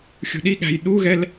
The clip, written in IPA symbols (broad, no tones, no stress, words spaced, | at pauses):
xʲṳɗiɠæ̤j ɗuɣɛl